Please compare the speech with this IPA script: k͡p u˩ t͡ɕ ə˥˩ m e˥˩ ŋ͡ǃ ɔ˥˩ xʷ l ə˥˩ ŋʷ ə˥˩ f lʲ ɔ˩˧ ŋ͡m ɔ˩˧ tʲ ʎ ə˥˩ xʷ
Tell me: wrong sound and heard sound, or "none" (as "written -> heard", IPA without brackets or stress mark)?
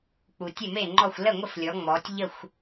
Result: t͡ɕ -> tʲ